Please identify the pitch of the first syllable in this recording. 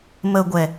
low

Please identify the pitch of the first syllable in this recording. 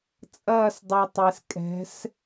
falling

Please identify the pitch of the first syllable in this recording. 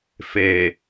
low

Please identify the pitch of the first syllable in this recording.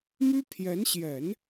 high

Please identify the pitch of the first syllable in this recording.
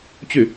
falling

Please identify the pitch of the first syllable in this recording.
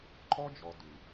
high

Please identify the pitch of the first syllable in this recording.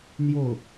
falling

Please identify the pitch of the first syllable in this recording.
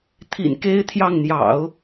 low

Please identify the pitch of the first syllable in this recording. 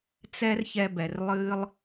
high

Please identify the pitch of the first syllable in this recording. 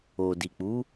low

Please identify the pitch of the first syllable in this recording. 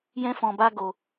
high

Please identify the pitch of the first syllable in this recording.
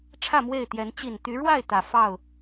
falling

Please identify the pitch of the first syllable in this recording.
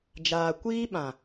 low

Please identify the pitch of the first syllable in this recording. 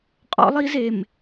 high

